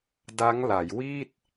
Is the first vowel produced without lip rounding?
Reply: yes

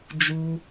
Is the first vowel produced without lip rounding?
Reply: no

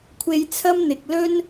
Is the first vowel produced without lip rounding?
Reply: yes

